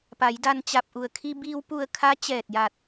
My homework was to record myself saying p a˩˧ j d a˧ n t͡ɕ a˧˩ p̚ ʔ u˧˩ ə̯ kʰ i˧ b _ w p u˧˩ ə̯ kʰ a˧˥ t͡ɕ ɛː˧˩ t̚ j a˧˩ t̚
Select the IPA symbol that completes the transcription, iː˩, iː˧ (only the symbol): iː˧